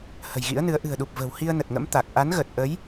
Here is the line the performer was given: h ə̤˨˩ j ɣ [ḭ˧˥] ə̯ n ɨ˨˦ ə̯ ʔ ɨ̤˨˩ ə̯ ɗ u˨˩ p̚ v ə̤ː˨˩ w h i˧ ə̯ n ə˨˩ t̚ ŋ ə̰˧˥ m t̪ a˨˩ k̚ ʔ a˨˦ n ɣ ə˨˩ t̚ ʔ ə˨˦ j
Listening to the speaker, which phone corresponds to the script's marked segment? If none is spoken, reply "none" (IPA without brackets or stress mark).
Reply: ḭ˧˥